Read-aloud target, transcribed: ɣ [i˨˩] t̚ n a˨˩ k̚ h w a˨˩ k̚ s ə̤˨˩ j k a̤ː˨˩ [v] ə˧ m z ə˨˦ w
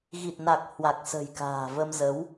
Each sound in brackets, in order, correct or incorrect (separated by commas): correct, correct